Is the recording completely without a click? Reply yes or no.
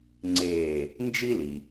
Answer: no